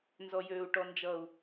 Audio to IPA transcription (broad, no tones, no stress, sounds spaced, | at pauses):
n z ɔ j øː u̯ ʈ ɔ n d͡ʒ ʌ u̯